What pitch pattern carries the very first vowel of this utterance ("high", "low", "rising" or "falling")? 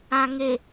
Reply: low